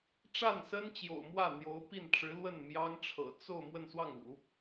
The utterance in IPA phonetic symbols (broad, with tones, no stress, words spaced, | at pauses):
ʈ͡ʂa˥˩nsə˥nt͡ɕjo̰˨˩ʊ̯ mwä˥˩n̪jo˧˥ʊ̯pi˥˩nʈ͡ʂɻ̩˧˥ lwə˥˩n mjɑ˥ŋʈ͡ʂʰɤ̰˨˩ t͡so˥˧ʊ̯ mwə˥˧nswɑ˥˩ŋṵ˨˩˦